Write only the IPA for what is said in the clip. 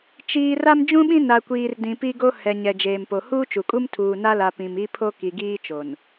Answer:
t͡ʃiː˨ ra˦md͡ʒũ˦ɓĩ˦ na˨kʷiː˨r dĩ˨pi˦ɡo˦ hɛ˨ ɲɛ˨d͡ʒeː˨mpo˨ huː˦t͡ʃu˨kʼu˦m tʰuː˨na˦la˨ pĩ˨mi˦ pʰo˦ ki˨ɡiː˦t͡ʃo˨n

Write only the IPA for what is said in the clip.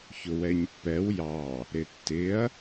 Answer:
çʊwɛɲpːɛw jɑ | ɾɪtːɪɐ̯

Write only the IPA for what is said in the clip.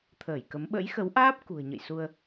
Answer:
t̪ʰəː˧˩jkə˨˦m ɓə̰˧˥jxə˨˦wʔaː˦˥p̚ kṳ˨˩ə̯ɲə̰˧˨jsu˧ə̯

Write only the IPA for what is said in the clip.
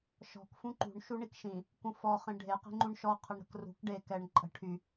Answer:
ʃɔ̤k fũǃṳɳ ʃuɳikʃĩ | kũfɔ χẽɖʱe qi̤ŋ͡ǃũɳʃɔ qʰəɳɾə̤krṳk ɖe kɛɳ ǃʼə̤ ʈʰy

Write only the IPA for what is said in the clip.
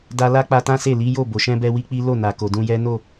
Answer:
da˧ la˦k͡pa˧ tã˦se˦˨ li˨˦jo˦˨bo˨ʃɛ̃˧ bɛ˦wi˦k͡pi˦ lo˦˨na˨ ko˨dũ˧jɛ˦ no˦˨

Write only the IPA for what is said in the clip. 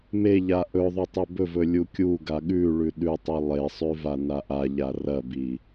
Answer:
meʎa ʔɵðˤu tˤebɵvɵ lʲukʲuɡa ɠʉɭʉ ɗʉtˤi lˠesˤʉ vanaʔaʎa rɐbi

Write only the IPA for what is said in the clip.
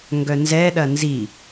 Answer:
ŋɡœnzɛ ɗɐnzi

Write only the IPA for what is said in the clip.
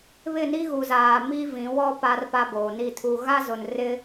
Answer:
βɪ˦˨ni˦ɣu˨zaː˨ mi˦vĩ˨˦wɔ˦ pa˦rpa˦boː˨ni˦˨ tʰu˨ɣa˦zʊ˨n rɪ˦

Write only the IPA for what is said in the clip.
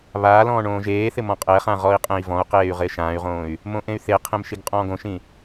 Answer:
βaːlɔ̃ː ɳõːʒeːθɪ mɔ̃qʼɛχã ʁɔi̯qʼẽi̯vɔ̃u̯qeːy̯ ʁɪːʃãːy̯ʁõːy̯ | mõʔẽy̯θeqʰẽm ʃiɡqʼɔ̃ːɡõʃĩ

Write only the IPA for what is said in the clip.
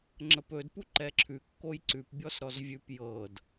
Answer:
ŋ͡ǁəpɵdpu ǃɛǁʰʉ kːojǀʉp bʲɔsɾɔzvʲʉp jɤd

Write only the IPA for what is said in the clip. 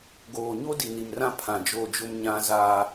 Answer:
ɡoː˨ɲo˦di˨ni˨m rã˦pʰã˨d͡ʒo˦˨d͡ʒʊ˦m ɲã˦ za˦

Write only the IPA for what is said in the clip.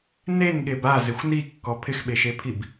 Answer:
nenɠeb azɪxʷ nikːɔ pʰɪxɓeʃepʰib

